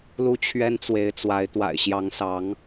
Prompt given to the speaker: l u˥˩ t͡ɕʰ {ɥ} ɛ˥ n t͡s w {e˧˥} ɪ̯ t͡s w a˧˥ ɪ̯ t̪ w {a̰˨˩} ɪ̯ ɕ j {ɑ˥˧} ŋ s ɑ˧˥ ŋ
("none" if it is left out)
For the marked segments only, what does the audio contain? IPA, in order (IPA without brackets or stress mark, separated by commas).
ɥ, e˧˥, a̰˨˩, ɑ˧˥